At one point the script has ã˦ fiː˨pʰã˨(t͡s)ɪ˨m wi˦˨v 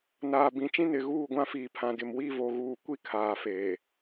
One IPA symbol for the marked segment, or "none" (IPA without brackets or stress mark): d